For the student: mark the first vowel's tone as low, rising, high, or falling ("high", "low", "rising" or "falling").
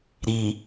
low